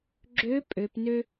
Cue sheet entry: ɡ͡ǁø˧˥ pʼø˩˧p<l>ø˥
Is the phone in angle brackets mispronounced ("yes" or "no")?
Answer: yes